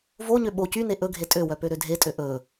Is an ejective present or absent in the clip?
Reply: present